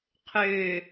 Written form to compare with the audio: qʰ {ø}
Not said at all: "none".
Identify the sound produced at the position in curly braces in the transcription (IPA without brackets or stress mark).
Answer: ø